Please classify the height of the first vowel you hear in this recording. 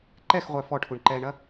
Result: mid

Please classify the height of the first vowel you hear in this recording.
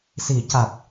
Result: high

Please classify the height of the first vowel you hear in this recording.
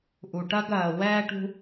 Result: high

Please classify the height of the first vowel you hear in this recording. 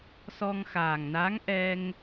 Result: mid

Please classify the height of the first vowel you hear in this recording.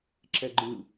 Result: mid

